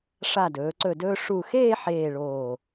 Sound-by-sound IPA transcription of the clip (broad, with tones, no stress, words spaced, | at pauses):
ʂa˧˩dɵː˩˧ǀɵ˧˩dɵː˧ ʂu˧˩ xeː˥˧ħeː˧˩ ɭoː˧˩